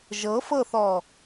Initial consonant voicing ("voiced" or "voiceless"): voiced